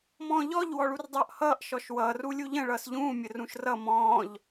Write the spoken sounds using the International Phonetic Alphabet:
mɔ̃ːʎɔʎ wɔɭurdˤʌːʔhʌːʔ ʃɔʃwʌːr ulʲuʎə̃ ɭʌːsʎũː mʲərũʃrʌ mɔ̃ːʎ

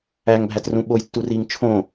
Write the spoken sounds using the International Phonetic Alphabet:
æŋbʱætrũ ɓojtːuriːŋ t͡ʃʰõ

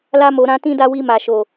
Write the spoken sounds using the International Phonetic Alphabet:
la˦mo˧ɾã˦ tĩ˦da˦ wi˧ma˨ ʃo˨

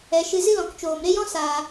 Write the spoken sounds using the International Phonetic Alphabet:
ɛ˨ʃɨ˧ zɨ˦lɔ̃˨kt͡ʃoː˨m ɾe˦jɔ̃˦ saː˨

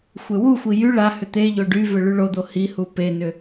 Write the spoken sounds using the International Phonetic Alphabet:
xʷewuxʷi jy ɭahʏ t̪eʎo ɖyvʏ ɭyɭod̪o hihu penʏ

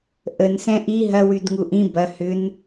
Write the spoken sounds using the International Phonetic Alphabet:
ʔən sɛ̃ʔi ɦɐ wydŋuʔĩ bɐ hʏn

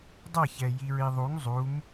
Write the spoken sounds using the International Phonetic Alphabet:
dˤʌçɛ jiɹiðˤuŋ zˤum

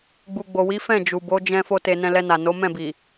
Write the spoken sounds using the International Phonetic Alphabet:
ɡ͡bu˨ɡ͡bo˨wi˨˦ fɛ̃˦˨ d͡ʒu˨bo˨˦ d͡ʒɛ̃˦ fo˦te˧ nɛ̃˧lɛ˧na˨ no˨˦ mɛ̃˦˨bi˨

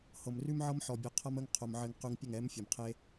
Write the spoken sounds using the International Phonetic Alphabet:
hɤ˨mrʉ˦m ʕɤ˦mħɔ˨bʲo˨ qʰʌ˦mə˦ŋqʰo˨m ʕɘ˨ŋ qʉ˨ŋ pʲə˦˨ŋɛ˨˦mfʲɤ˨mqʰe˦

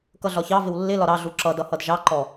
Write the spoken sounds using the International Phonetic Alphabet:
kʌɮɒçɑvɪw lːɪlɒ ɾɑɮu ǁʌdʌ hʌdʒɑǃɔ

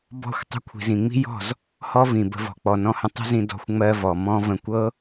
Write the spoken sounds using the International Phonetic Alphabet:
bɔ̤˦˨xʷ tˤə̤˧ kʷʰi̤˨zĩ˨ŋ͡mi̤˦jɔ̤˦˨z | hɔ˦vĩ˨bə̤˧ vɔ̤˨k͡pɔ˨nɔ̃˧hə̃˧ tˤə̤˦zĩ˧ dɔ̤˧xʷŋ͡mɜ˧vɔ˨ mɔ̃˦ və̃˧kʷɤ˦

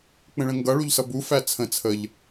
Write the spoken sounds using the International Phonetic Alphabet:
k͡pə̃ɭə̃ŋɡʌ ɭuʎsʌbu fæt͡sʰə̃ t͡sʰəʎ

